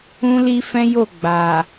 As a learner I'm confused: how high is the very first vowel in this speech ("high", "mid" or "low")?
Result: high